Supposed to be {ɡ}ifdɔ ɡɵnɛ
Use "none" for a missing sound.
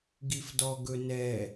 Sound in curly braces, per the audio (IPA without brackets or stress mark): ɡ